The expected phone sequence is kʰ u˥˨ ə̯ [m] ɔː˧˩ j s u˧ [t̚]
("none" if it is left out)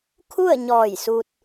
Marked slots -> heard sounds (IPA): ɲ, t̚

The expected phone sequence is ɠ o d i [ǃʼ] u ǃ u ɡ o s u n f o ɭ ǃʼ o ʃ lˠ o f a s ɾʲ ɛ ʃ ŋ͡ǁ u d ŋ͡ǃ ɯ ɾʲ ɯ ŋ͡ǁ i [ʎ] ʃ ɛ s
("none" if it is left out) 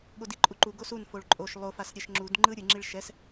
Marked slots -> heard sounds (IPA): ǃʼ, ɭ

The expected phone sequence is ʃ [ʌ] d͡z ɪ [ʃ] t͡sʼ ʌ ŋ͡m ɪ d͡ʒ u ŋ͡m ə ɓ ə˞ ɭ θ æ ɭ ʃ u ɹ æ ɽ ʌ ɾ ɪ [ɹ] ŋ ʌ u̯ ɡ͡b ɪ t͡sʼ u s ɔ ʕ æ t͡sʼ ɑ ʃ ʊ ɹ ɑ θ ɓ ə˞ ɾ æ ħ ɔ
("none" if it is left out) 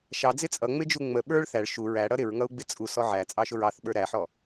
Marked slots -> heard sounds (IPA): ɑ, none, ɹ

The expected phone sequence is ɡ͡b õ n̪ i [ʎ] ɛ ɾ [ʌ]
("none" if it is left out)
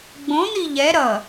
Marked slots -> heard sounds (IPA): ʎ, ʌ

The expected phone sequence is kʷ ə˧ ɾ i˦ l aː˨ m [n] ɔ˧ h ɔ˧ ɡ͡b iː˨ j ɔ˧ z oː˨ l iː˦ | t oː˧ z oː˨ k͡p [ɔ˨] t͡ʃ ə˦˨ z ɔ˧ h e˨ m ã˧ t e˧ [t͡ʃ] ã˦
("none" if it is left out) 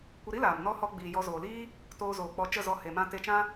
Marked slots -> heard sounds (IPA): n, ɔ˧, t͡ʃ

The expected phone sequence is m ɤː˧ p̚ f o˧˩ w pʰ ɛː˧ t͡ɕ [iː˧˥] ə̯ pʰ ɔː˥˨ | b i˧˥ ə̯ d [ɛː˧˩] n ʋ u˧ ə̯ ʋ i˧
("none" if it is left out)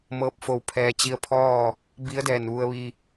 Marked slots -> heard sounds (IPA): i˧˥, ɛː˧˩

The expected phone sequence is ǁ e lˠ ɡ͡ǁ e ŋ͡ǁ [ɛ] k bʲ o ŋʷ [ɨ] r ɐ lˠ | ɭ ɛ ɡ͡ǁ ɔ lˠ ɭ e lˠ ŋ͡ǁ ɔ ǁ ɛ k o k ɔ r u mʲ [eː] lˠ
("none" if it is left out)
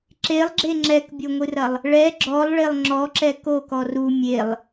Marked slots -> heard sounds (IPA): ɛ, ɨ, e

